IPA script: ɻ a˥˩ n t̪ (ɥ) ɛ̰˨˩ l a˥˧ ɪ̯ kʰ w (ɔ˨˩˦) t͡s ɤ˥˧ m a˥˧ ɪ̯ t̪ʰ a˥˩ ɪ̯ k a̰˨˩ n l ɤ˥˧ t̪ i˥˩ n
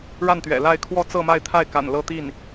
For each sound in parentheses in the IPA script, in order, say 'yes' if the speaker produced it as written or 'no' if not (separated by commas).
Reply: yes, no